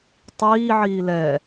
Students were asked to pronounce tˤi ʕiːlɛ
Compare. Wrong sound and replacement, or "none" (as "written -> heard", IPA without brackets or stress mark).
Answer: i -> iː